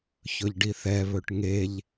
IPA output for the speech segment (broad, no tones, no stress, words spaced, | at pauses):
çɵʎɖiθɛ βɵʈŋeʎ